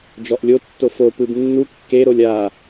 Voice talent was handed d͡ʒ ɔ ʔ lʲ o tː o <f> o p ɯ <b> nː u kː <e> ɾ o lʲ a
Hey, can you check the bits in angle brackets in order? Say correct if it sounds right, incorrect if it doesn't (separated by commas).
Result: correct, correct, correct